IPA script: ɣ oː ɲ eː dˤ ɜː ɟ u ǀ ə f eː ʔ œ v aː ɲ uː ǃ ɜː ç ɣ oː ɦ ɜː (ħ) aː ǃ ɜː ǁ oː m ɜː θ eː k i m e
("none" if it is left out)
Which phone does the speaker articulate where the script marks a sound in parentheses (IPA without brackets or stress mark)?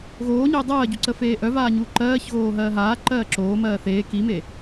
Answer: ɦ